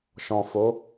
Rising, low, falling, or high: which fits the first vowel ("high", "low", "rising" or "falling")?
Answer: low